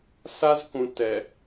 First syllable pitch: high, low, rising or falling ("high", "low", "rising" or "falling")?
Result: high